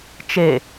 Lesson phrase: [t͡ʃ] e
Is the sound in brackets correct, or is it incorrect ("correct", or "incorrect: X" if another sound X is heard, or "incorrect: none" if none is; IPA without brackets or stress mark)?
correct